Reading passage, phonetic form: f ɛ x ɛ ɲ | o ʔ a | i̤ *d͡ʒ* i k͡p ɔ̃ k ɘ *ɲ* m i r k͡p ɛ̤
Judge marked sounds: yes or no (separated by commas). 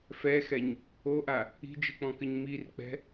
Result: yes, yes